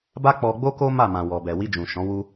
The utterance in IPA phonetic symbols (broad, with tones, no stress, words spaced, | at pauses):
ba˦k͡pɔ˧ɡ͡bo˦ko˦ ma˦˨ mã˨wɔ˨bɛ˨ wi˧d͡ʒũ˨ ʃɔ̃˨˦wu˦